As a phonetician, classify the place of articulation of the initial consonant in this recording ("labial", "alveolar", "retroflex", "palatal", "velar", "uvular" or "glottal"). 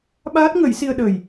labial